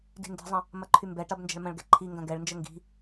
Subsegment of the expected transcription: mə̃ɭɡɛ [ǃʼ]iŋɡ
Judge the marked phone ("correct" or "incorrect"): incorrect